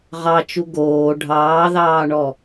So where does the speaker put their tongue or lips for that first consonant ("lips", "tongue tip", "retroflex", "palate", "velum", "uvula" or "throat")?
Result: uvula